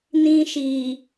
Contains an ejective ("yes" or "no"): no